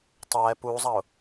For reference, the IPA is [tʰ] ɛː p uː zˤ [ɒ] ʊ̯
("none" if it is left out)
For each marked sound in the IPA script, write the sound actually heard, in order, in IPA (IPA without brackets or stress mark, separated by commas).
tˤ, ɑ